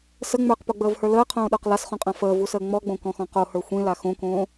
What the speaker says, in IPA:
s ə ŋ͡m ə˞ q p o ɡ͡b əː v h ə˞ l əː qʰ õː ɗ ə˞ q l a s χ õ qʼ ã f əː v u s əː ŋ͡m ɔ ɡ͡b õ k ɔ̃ x ɔ̃ q o h ə˞ xʷ ĩ l a x õ k õː

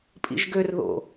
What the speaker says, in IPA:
pʼ ḭ ʒ ɡ ø r ð o̰

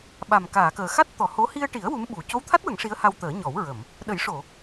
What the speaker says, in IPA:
ɓ a˨˩ m k aː˨˩˨ k əː˨˩ x a˦˥ t̚ t̪ ɔ˨˩˨ h o˧˥ h i˧ ə̯ ʈ i˨˩˦ ə̯ w u˧˥ m ɓ u˨˩ c o˧˥ w t̪ʰ a˦˥ t̚ w ə˨˩˦ ŋ ʂ i˧˥ ə̯ h a˧ w t̪ əː˨˩˦ ɲ ɔ˨˩˦ w ɹ ə˨˩˨ m | ɗ ə˨˩˦ j ʂ o˨˩˨

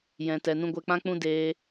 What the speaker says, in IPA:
j ɛ̃˨ t ɛ˨ n ũ˧ ɡʷ ɛ˧ k͡p ã˦ k͡p ũ˦ d eː˦

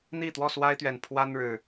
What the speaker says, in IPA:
n̪ i˥˨ t̪ w ɔ˥˨ s w a˦ ɪ̯ t̪ ɥ ɛ˨˩ n pʰ w a˦ n ɻ ɻ̩˨˩

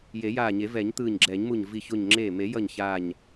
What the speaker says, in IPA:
j e˨˩˦ j aː˧˩ ɲ e˨˩˦ v ɛ˨˩˦ ɲ t̪ ɯː˧˩ ɲ ɡ͡ǁ ɛː˨˩˦ ɲ m u˧˩ ɲ v i˧˩ ç o˧˩ ɲ ŋ͡ǁ eː˧˩ m e˨˩˦ j ʌ˧˩ ɲ ç aː˧˩ ɲ

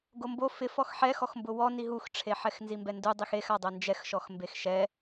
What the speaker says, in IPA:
ɡ o m b o f ɪ f ɔ x ħ ɛ x ɔ x m b ʊ w ɔ n i ɦ u x ʈ͡ʂʰ e ħ ɛ x n z i m b ɛ n d u dˤ i x e x a dˤ o n d͡ʒ ɛ x ʃ ɔ x m b e x ʃ ɛ

